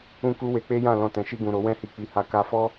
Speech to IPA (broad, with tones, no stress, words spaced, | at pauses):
ũ˦ku˦we˧ k͡pe˦jã˦˨ lɔ̃˧tɛ̃˨ ʃi˧ɡũ˨ ɾo˨˦wɛ̃˦hi˧ k͡pi˧ ha˧ ka˧fɔ˦